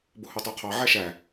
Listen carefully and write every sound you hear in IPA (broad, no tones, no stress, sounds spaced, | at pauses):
b ʊ h u tˤ u qʰ ɑ ʕ æ ʃ æ